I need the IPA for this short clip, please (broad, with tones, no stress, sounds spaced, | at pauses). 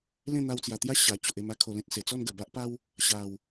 l ẽ˥˧ n̪ a˧ w t͡s j a˨˩ t̪ j a˦ ɕ a˨˩ t͡ɕ o˨ ʔ e˧ m a˦ kʰ o˧ l ẽ˦ t̚ s e˨˩ t͡s ɔ˥˧ n ɡ ə˨˩ b a˦ ʔ p a˦ w | ɕ a˨˩ w